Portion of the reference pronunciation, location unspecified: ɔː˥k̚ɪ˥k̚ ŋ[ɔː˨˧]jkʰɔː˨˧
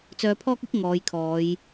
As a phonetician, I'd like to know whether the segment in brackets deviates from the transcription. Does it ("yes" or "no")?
no